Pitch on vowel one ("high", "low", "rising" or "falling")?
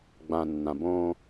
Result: low